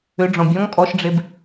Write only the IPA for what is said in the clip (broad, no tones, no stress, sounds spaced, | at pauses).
ʏ ɖ͡ʐ ɔ̃ bʲ ɔ̃ ŋ kʼ ɔ ʃ ɖ͡ʐ e b